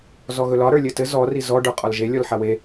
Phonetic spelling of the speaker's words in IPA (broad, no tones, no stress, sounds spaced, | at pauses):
z ɔ ɣ ɵ l ɒ ɾ ə˞ lʲ ɘ t ɘ z ɔ r i z ɔ ɖ ə˞ qʼ ɒ l ʒ e lʲ ɔ l ħ a w e